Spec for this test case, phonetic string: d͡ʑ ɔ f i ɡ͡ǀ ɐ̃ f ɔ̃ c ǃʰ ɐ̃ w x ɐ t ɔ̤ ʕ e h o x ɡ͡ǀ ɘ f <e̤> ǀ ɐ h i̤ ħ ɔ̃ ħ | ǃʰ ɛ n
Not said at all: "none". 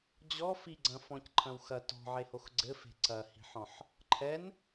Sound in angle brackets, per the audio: e̤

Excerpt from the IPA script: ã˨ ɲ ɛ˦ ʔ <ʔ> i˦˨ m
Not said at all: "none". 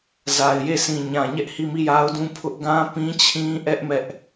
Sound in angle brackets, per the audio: h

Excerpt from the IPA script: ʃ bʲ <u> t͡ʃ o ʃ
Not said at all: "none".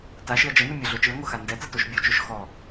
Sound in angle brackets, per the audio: o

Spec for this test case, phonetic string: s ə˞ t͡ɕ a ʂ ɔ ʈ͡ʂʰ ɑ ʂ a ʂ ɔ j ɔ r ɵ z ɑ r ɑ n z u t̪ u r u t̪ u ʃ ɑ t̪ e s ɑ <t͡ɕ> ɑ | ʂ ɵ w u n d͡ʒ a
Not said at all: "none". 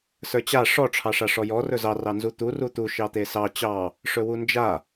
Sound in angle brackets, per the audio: t͡ɕ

